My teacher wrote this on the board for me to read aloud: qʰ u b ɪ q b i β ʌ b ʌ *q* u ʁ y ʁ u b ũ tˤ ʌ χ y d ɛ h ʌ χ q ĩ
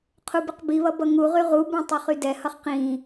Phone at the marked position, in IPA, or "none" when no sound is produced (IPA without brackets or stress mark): ŋ